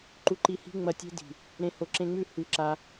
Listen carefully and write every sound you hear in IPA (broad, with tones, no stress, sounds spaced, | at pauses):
ǃ u˧ ǃ i˧ h i̤˦ ŋ͡m ɐ˧ tʲ e̤˦ d i̤˨ | ɾ ẽ˨˦ h o˨˦ ǁ ẽ˧ ŋ͡m ʉ˦˨ h ʉ˧ ǁ a˧